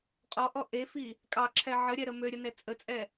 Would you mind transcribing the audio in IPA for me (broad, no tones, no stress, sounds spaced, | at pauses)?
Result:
qʼ ɔ ʔ ɔ ʔ e f i | kʼ ɑ ǁʰ ɛ ʕ ə ɾʲ ɛ ɾ ə m ø ɾʲ ə n ɛ t͡sʼ ə t͡sʼ ɛ